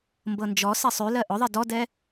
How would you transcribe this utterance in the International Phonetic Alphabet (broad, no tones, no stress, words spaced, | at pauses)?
mbɤnd͡ʒɔsɛ sˤʉlɜ ʔʊðˤe dɔdɛ